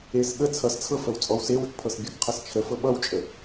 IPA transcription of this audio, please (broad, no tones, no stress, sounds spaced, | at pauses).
e s ɠ ə t͡sʰ ʌ s t͡sʰ ɤ f ə w t͡sʼ ɔ w s e w ə k pʰ ɤ s bʲ ɤ k qʰ ʌ s t͡ʃʰ ə f ɤ ɓ ʌ w t͡ʃʼ ə